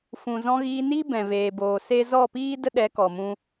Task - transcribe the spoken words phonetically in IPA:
fũ˨ zɔ̃˧ɣiː˧niː˦ bɛ̃˨veː˨boː˨ se˦ zɔ˦˨piː˦ də˦ɗɛ˨˦kɔ˨mũ˧

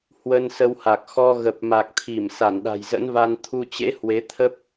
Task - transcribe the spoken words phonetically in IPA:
hwə˧n sə˧wha˨˩k̚ xɔ˧ ɣə˨˩p̚ma˨˩k̚t̪ʰi˧˩m sa˧˩nɗa̤˨˩jzə̰˧˥nva˧n t̪ʰu˧t͡ɕḛ˧˥ hwe˨˦t̪ʰə˦˥p̚

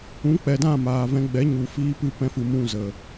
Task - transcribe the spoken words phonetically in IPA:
ũ˨˦k͡pɛ˨ dã˦˨maː˨vɛ̃˧ ɡ͡bɛ˨˦ɲu˨fiː˧pɨ˧ pɛ̃˧fɨ˨ mũ˦˨ zə˨

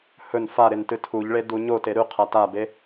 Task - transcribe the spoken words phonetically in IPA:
hɵn fa ɾentɨtʰuʎɭe duɲote ɾʉ qʰatabe

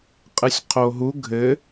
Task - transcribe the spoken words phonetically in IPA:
qʼɨsʲqʰoɦu ɡʱɘ

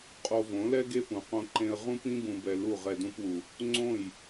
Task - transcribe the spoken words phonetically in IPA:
qʼo˧võ˨˦lɛ˦ ɡe˦pũ˨qõ˧ǃẽ˧ə̯ ʁũ˦pĩ˦bũ˨bɛ˨ lu˦˨ʁɛ˧ dũ˧pwu˨ | ŋ͡ǀõ˦˨j

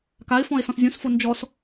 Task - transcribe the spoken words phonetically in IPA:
kaɪ̯fɔ̃ɪ̯ sɔ̃szʲũsfo nd͡ʒɔs

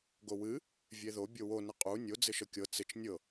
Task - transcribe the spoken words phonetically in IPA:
ɡowɨ | vʲeðo bʲowo nɪqʼu nʲo d͡zɪʃɤkʲɤ t͡sɪt͡ʃ nʲɤ

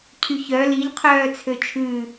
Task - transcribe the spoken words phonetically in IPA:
cʰyçœ liʎ qʰœːt͡sʰøt͡ʃʰʉ

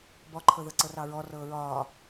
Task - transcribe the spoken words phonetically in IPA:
bɔǃʰɤðɤ ǀɤrɑɹɔ rɤːɹɒː

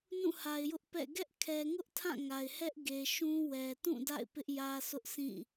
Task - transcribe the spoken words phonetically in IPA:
nũ˦˨ha˨ɪ̯jʊ˦ʔpɛ̰˦˨ ɡɛ˦ʔ kʰɛ˨ŋʊ˦ʔ tʰã˦˨ŋa˨ɪ̯hɛ˦ʔ ɡe˨ʃũ˦ wɛ˨tũ˦˨ da̰˦˨ɪ̯pɪ˦ʔ jä˦sʊ˦ʔ sʰĩ˦˨

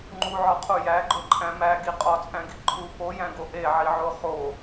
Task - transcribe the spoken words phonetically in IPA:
ŋ͡ǃuʕɒqʰu jæɡ͡ǃoǃʼæ̃ mæɡi qʼɒt͡sʼæ̃ɡi ǃʰu pojæ̃ɡo ʔeʕiʕo χo

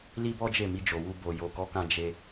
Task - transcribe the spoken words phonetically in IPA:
li˦bɔ˦d͡ʒe˦˨mi˧ d͡ʒo˨wu˧ bo˨ jo˨kɔ˨˦kã˧ d͡ʒe˧

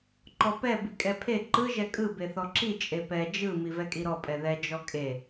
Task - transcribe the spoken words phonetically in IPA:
ǃɔpɛ bikʼɛpʰe ǃɯ ʒɛkʼɯ beθɔǁi t͡ʃʼepɛ d͡ʒɯ mivɛkʼiɾɔ pʼɛðɛ d͡ʒɔkʼe

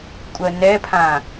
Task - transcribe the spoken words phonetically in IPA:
kʷʼɜnɛpʰã

